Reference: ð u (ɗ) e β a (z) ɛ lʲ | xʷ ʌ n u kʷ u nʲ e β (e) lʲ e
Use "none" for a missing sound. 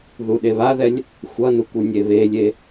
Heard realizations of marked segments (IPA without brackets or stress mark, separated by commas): ɗ, ð, e